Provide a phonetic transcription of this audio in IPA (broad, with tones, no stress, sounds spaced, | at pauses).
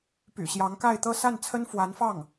p y̰˨˩ ɕ j ɑ˧˥ ŋ k a˥˧ ɪ̯ t̪ ɤ˥˧ s a˥˩ n t͡sʰ ə˥ n f w a˧˥ n f ɑ˥˩ ŋ